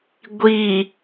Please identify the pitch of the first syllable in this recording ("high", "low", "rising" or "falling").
low